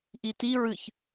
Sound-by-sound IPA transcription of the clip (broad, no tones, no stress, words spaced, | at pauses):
ʔiti ɹɨç